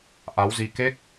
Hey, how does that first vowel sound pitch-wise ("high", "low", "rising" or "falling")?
rising